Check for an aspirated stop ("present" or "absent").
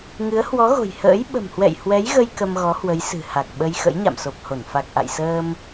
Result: absent